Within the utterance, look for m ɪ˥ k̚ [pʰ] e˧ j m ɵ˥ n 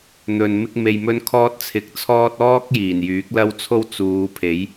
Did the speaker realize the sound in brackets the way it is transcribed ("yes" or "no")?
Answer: no